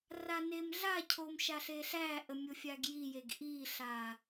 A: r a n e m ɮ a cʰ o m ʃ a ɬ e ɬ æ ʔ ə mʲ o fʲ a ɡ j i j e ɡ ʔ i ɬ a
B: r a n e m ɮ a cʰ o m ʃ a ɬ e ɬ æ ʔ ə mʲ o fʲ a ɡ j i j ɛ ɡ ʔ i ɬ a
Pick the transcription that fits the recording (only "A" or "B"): A